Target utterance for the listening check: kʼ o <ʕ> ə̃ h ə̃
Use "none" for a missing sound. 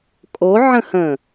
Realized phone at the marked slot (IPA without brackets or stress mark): ʕ